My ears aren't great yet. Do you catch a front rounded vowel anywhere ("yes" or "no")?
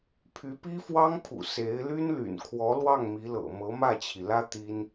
yes